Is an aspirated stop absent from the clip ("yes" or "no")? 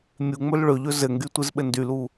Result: yes